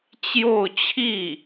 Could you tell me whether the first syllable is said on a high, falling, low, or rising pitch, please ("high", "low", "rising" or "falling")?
falling